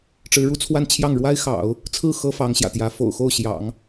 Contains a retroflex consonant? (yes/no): yes